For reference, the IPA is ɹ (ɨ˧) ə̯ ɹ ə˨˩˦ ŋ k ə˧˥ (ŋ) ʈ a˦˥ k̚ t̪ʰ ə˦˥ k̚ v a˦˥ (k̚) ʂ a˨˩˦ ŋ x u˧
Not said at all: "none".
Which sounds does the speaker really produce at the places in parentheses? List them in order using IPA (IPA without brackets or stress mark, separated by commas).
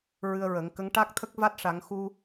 ɨ˧, ŋ, t̚